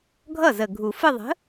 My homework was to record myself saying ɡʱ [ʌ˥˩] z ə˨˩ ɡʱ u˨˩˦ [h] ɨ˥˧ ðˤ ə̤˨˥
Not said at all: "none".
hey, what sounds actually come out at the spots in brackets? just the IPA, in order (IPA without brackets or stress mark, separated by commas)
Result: ʌ˥˩, f